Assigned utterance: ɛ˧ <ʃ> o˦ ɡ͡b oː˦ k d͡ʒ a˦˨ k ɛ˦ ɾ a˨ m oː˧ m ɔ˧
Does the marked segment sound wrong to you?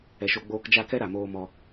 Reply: no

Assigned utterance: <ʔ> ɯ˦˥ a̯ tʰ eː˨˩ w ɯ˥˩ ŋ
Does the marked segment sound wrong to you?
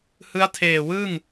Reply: yes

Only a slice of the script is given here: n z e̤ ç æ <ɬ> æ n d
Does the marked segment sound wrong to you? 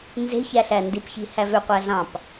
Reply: no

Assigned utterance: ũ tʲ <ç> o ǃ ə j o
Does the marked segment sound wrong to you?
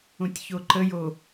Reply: no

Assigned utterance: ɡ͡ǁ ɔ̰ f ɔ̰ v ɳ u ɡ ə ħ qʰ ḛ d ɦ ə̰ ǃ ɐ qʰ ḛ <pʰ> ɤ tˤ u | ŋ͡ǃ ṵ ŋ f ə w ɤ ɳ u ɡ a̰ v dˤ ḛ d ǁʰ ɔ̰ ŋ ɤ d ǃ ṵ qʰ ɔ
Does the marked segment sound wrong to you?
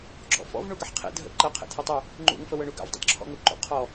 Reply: yes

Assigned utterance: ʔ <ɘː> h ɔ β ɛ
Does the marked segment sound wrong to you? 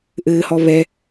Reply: no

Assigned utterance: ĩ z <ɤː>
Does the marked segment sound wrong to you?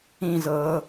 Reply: no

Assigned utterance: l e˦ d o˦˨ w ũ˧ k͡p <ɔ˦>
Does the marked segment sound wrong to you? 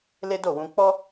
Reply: no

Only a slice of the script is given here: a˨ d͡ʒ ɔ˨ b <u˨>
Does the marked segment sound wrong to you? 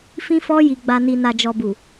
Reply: no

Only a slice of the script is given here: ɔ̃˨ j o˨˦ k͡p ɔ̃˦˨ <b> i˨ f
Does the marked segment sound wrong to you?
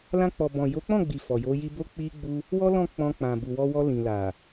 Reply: yes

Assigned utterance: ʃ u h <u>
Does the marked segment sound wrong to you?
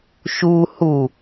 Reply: no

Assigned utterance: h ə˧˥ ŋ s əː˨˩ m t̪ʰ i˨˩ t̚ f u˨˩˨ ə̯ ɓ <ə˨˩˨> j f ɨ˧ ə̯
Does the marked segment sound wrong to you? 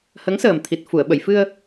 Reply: no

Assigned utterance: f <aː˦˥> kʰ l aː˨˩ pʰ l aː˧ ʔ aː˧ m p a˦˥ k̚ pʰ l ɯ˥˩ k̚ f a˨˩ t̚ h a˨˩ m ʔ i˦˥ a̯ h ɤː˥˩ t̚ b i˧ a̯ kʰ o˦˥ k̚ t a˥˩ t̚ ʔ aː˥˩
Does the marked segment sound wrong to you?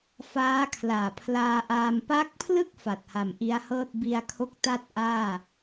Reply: no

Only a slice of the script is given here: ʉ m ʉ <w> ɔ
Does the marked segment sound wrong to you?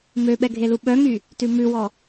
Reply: no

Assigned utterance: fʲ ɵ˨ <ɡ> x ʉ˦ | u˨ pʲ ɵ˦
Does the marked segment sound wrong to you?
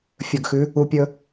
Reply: no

